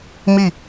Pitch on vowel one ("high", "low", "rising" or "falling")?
falling